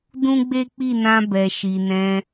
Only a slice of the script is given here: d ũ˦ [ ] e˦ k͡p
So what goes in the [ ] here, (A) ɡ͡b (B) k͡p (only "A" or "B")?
A